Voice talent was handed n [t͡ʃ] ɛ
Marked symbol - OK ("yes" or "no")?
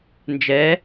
no